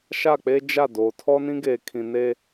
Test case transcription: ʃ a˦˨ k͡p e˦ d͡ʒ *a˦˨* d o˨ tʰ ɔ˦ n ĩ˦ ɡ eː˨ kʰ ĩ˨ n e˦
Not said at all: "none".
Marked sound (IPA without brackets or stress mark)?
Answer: a˦˨